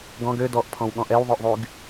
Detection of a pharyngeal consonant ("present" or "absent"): absent